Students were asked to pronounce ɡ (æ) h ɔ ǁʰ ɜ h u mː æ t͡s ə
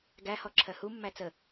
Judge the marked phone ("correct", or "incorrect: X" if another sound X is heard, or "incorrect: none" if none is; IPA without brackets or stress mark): correct